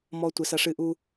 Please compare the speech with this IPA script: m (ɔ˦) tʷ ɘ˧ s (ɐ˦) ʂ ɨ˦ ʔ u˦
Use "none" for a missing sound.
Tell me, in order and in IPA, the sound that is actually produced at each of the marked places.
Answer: ɔ˦, ɐ˦

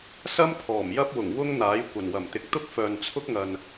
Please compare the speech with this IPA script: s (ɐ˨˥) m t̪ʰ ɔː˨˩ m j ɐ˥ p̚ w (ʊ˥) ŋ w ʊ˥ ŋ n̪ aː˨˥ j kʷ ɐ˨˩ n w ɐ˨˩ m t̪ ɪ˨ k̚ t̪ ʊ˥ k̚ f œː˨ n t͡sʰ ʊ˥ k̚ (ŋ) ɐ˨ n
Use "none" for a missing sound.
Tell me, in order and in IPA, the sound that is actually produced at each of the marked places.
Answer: ɐ˥, ʊ˨˩, ŋ

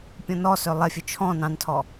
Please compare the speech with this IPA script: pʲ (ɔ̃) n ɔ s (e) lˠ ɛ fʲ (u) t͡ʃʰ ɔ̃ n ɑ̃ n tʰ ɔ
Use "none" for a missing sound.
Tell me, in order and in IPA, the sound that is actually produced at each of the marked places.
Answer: ɔ̃, ø, ø

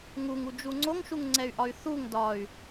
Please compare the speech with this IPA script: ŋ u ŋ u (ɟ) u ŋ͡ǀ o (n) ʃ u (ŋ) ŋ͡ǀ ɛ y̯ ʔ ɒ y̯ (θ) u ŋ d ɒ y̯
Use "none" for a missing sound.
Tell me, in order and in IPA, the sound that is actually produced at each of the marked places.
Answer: d͡ʒ, ŋ, ŋ, θ

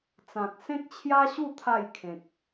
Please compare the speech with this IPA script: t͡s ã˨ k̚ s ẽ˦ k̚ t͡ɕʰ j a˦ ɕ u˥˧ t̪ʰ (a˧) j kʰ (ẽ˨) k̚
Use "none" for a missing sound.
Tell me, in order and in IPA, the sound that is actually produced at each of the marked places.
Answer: a˥˧, ẽ˨

